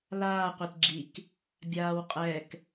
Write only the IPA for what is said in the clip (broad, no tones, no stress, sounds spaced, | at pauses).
l aː qʷ e t ɡ͡ǁ i k | bʲ aː w qʼ ɛ k